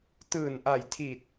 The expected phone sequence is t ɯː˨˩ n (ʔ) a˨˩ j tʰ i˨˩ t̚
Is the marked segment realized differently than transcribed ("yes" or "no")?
no